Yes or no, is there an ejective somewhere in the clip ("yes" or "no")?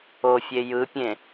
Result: no